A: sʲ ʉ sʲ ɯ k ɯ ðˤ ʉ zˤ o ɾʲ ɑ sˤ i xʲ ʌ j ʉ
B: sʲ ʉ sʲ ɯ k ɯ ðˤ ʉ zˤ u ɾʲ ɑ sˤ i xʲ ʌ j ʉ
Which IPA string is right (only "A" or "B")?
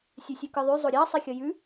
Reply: A